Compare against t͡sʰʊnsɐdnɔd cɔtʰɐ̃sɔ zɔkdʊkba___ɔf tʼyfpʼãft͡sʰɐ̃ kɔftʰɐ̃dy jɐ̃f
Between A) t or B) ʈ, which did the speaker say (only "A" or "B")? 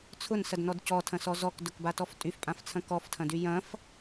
A